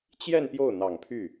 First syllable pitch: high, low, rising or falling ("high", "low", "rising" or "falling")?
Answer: falling